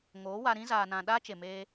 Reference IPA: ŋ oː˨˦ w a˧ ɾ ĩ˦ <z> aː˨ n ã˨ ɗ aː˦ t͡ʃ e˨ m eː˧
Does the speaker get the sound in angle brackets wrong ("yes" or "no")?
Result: no